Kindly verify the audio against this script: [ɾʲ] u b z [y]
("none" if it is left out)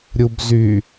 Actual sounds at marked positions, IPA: ɾʲ, y

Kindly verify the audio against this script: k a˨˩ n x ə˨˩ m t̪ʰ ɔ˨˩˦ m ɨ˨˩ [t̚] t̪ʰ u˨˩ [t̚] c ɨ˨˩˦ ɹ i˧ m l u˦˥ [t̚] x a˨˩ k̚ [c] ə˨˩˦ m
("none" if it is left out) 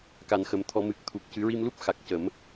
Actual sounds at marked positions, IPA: k̚, k̚, p̚, c

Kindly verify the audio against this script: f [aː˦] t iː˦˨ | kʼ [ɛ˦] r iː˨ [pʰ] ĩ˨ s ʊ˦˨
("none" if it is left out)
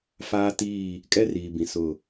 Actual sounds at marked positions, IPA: aː˦, ɛ˦, b

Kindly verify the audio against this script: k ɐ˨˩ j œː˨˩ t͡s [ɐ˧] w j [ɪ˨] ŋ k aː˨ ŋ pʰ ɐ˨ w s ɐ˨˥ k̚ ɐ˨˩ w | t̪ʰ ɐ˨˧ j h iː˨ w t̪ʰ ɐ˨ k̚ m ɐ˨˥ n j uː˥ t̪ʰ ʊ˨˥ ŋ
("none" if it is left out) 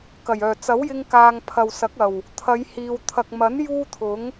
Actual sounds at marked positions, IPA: ɐ˨˥, ɪ˧

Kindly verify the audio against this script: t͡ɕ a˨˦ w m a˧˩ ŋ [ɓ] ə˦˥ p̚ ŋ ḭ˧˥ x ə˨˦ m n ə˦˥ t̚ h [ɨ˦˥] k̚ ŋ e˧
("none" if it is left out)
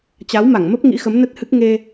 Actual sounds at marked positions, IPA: m, ɨ˦˥

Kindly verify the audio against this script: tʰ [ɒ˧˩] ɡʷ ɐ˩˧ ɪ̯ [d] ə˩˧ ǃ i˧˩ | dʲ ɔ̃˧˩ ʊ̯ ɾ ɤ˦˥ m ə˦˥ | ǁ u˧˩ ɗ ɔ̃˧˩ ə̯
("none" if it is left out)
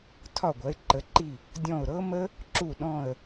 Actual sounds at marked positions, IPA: ɒ˧˩, ǃ

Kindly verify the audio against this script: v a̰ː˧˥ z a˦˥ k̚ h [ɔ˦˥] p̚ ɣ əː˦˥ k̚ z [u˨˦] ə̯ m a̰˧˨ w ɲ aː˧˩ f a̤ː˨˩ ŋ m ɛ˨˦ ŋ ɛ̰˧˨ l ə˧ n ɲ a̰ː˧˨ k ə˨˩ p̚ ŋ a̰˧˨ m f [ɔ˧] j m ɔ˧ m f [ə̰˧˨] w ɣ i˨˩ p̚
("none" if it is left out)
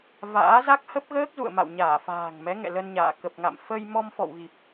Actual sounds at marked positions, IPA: ə˦˥, ṵ˧˨, ə˧, ɔ̰˧˨

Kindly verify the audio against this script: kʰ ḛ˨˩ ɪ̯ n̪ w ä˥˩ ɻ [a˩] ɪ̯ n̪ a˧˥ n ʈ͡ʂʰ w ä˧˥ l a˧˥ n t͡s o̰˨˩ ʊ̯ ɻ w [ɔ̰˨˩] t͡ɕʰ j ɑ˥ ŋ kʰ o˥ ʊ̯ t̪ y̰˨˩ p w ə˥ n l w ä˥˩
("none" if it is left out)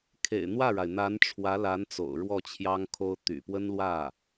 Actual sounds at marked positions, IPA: a˩, ɔ˥˩

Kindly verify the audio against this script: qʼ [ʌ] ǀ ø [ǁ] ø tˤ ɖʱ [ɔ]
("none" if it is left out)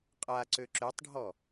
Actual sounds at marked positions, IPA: a, ǁ, ɔ

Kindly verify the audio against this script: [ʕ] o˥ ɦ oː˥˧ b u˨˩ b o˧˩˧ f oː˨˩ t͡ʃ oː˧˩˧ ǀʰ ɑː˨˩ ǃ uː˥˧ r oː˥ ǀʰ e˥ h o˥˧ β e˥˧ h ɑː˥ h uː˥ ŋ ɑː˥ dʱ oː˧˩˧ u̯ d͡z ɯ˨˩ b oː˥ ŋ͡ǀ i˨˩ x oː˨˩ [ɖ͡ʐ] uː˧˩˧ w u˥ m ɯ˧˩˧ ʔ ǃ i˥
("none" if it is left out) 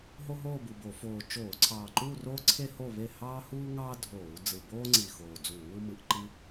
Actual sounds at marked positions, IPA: ɦ, d͡z

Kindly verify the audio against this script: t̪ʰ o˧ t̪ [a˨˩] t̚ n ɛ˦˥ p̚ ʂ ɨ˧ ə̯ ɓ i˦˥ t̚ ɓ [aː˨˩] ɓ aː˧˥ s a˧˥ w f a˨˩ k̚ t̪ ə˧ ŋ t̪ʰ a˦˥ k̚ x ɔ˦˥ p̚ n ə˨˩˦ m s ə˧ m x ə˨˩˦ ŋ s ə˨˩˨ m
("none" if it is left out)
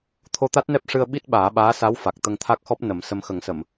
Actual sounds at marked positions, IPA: a˦˥, aː˨˩˦

